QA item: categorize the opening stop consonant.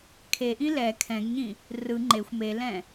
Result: aspirated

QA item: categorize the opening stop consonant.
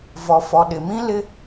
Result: implosive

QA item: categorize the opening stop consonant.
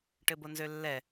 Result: plain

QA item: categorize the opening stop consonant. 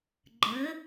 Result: click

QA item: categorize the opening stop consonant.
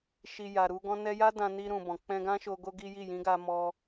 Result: plain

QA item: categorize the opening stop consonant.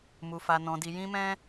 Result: plain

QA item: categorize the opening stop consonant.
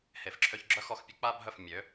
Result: click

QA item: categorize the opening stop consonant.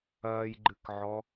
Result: click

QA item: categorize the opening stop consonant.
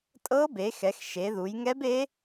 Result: ejective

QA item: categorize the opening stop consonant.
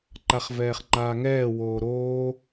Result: click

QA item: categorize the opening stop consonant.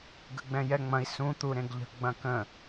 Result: plain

